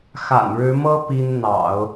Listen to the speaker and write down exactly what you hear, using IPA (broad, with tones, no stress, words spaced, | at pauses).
xa̰˨˩nɻɻ̩˧˥mɤ˥ pi˥n n̪ɑ̰˨˩˦ʊ̯